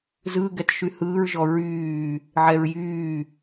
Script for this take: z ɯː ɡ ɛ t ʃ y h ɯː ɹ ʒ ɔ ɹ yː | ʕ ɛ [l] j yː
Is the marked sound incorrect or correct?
incorrect